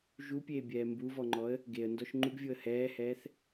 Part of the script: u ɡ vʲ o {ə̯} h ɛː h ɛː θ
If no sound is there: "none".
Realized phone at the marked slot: ə̯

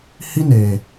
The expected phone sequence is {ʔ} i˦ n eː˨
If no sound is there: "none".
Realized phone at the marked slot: h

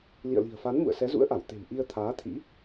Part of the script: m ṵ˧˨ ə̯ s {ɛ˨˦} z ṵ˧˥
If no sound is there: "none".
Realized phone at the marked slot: ɛ˨˦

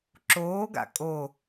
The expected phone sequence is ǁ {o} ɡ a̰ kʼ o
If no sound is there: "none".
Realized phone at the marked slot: oː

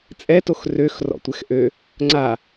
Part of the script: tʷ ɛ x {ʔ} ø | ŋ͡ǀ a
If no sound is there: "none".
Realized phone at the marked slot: ʔ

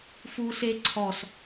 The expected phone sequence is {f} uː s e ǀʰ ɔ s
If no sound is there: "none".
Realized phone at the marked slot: f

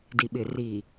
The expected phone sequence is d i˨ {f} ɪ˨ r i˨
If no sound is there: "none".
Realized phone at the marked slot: ɓ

